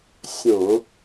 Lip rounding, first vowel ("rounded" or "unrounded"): rounded